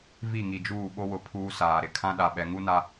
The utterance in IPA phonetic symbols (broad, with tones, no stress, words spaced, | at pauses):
vi˦˨ŋi˨d͡ʒuː˦˨ ɓo˦wʊ˨ pʰuː˦saː˨ ɾɪ˨ kʰã˦ɗa˨ɓɛ˨ ŋu˦ na˦